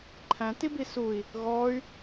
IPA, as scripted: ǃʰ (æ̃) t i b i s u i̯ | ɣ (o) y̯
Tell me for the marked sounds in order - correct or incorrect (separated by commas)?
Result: correct, incorrect